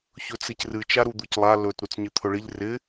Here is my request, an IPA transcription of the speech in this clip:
ç ɵ t͡s ɪ c r ɨ t͡ʃ a ɾ u d̪ u c lˠ a l ɵ t ɾ u t͡s ɲ ɪ t̪ʰ ɵ ɭ ɪ ʎ r ɪ

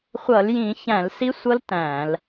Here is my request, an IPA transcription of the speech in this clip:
χʷ ʌ˧˩˧ l j ĩ˧˩˧ ç æ̃˧˩˧ l s i˦˥ sʷ ʌ˦˥ l t æ̃˧˩˧ l

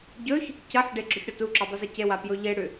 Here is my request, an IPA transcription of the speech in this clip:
ɟ ɵ ç | c ɐ ħ ɖ e ɡ͡ǁ ɵ ç ɽ o t u ǁ o dˤ ɵ z e c e w a p j o ʎ e ɽ ʉ

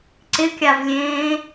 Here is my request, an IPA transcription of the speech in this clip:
ǀ ɪ kʲ a v lʲ ẽː

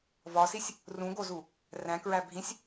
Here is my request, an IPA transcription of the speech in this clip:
v ɒ s i sʲ | r ũ ɡ o z u | r æ̃ k ɹ æ bʱ ĩ sʲ

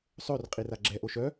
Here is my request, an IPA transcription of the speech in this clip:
sˤ ø r qʼ i r a ɡ͡ǁ ɛ ʔ o ʃ œ

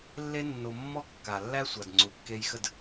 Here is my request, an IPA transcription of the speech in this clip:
lː e˧ nː o˨ mː ɔ˦ kː a˨ lː æ˦ sʷ a˨ d ŋ͡ǀ u˨ kː e˧ j x ə˦˨ d

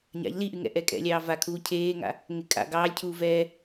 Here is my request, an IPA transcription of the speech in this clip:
ɲ a̰ ʎ l i ʔ y ŋ ɛ̰ ʔ ɛ kʼ ɛ̰ lʲ ɑː v a kʰ uː cʰ eː ŋ a̰ | ŋ e kʼ a̰ ɡ ɑː lʲ cʰ uː v ɛː

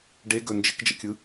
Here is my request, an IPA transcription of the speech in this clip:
ɖ e ɡ ɵ n d͡ʒ ɪ k d͡ʒ ə̰ kʲ ɯ

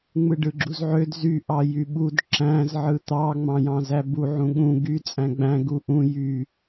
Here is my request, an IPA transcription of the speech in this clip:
ŋ͡m ɯ ɖ ɯ ɡ͡ǁ u z ʕ ø d z y ʔ ɑ j y ɓ u d ǁ æ̃ z ʕ ɯ t̪ ɑ ŋ͡m ɑ̃ j ɑ̃ z æ b u ʕ ũ ɠ ũ ɡ y t͡sʼ æ̃ ɡ͡b æ̃ ɡ u ʔ ũ j y

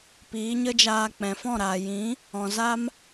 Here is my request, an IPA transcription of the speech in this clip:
p iː˨˦ ɲ ə˦ d͡ʒ aː˧ k͡p ɛ̃˨ f ɔ̃˦˨ ɾ aː˨ j ĩ˨˦ | ɔ̃˨ z a˦ m

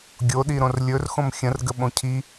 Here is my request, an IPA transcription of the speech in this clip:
ɡʲ o ɗ i ɾ õ r lʲ ɵ r x õ m xʲ ə̃ r ɡ ə ɓ õ cʰ i

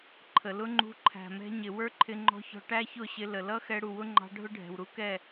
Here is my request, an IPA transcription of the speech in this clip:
ǃʰ ə˨ l ʊ˦ ŋ͡ǃ ṳ˧ ǃʰ æ̤˨ m ɛ̤˧ ɲ ɪ˨ w ə˞˦ ǃʰ ɪ˧ ŋ͡ǃ ɔ̤˧ ç ɔ̤˧ ʈ æ˦ ç ʊ˦˨ ɕ ɪ˧ l ə˨ l ʌ˦ x ɛ˧ ɽ u˨ w ʊ˦ ŋ͡ǃ ɑ̤˧ ɖʱ ʊ˦ ɖʱ ɛ̤˨ w ɾ u˦ k ɛ˦˨

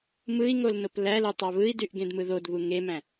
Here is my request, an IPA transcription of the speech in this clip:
m ɯ i̯ ŋ o l n o p l æ l u tˤ ɑ β ɯ i̯ d y ʔ ɡ ẽ d m ɯ ð o d β u ŋ e m æ̃

